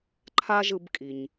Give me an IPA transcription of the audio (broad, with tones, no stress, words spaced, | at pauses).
ǃʰa˥ʒɯ˧bkʼi˩ɲ